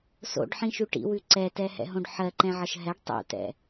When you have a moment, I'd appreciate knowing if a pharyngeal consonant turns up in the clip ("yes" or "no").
yes